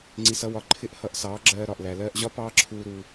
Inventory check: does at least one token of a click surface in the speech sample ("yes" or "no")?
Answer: yes